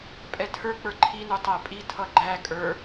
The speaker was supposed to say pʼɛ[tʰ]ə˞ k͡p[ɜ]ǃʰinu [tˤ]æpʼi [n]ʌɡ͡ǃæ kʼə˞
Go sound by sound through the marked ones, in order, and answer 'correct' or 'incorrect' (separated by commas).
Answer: correct, incorrect, correct, incorrect